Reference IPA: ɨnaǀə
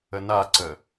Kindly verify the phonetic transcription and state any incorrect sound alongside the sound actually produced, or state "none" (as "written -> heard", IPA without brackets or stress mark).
ɨ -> ə